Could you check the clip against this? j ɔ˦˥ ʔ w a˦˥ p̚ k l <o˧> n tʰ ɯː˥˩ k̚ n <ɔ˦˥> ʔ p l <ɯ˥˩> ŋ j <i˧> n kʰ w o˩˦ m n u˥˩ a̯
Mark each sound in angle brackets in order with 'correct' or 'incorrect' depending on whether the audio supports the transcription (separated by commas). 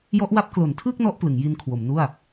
incorrect, correct, incorrect, correct